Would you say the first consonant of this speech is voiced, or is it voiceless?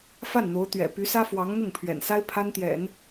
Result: voiceless